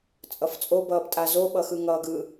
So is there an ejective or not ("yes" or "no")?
yes